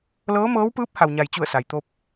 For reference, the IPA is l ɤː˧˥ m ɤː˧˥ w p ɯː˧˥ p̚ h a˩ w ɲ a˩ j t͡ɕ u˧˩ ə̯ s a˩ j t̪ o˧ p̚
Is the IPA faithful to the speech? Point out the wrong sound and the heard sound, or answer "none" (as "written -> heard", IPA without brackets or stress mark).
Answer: none